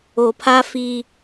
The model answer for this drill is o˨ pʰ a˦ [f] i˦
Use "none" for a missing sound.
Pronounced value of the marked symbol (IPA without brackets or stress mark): f